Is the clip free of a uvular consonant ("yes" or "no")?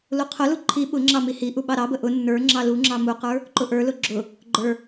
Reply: no